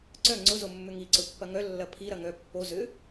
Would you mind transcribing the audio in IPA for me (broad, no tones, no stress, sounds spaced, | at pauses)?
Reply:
ǀ œ ŋ͡ǀ ʊ z o mː ʏ ŋ i ǀ ʊ pː ɐ ŋ œ lː ɐ pʰ i ɾ ɐ ŋ œ pː o z ʏ